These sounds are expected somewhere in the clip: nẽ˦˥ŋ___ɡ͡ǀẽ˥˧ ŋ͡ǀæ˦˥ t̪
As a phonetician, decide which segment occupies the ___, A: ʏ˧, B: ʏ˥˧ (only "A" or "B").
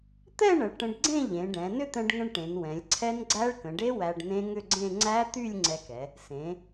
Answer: B